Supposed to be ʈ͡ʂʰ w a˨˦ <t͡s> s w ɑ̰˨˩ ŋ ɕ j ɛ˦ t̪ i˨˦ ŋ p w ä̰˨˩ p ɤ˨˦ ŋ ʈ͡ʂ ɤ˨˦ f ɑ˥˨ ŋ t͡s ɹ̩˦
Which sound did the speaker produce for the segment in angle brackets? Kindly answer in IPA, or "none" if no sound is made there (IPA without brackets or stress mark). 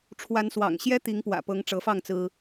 n